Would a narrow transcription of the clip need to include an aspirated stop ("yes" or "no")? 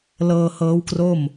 no